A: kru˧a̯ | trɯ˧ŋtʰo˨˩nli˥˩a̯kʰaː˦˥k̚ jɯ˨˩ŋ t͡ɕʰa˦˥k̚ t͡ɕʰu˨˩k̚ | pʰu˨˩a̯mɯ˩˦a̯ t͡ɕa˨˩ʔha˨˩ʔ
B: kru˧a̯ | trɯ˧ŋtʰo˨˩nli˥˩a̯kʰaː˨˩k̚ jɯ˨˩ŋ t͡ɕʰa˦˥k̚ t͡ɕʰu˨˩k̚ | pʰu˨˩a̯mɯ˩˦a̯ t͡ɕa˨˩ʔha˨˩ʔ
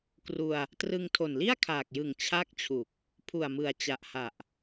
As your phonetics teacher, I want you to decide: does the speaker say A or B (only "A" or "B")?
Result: B